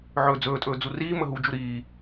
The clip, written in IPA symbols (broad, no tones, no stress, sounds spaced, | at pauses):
ʕ ɵː d͡z ɵː tʼ ɵː d͡z u r iː m ə ɦ u d͡ʒ u ɾ iː